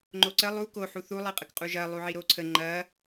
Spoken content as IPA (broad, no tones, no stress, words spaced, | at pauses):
ŋ͡ǃoǀə lˠu ko ħuθu lˠiqʼəkqʼuʒɐ lˠuʕiɾoǀʰə ŋ͡ǃɐ